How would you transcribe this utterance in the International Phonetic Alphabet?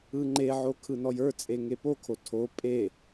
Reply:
ɯ ŋ͡ǃ e ʕ o kʰ ɯ n ɔ j ə˞ t͡sʼ e ŋ e p o kʰ o tʰ o pʼ e

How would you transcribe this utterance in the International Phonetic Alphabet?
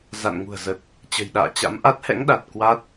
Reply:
z a̰˧˨ n ŋ ṳ˨˩ ə̯ z ə˨˩ t̚ | t͡ɕ ə̤˨˩ j ɗ a̰ː˧˨ t͡ɕ a̰˧˥ m ʔ a˦˥ t̚ h ɛ̰˧˥ ŋ ɗ a˨˩ t̚ k w a˦˥ t̚

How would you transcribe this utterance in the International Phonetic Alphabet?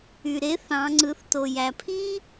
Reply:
y˩ ɾ e˧˥ θ ɑ̃˩˧ ŋ͡ǀ ɯ˩˧ θ t o˩ j æ˩ pʰ iː˥

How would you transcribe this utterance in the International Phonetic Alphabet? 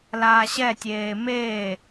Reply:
l aː ɕ ɛ tʲ eː m eː

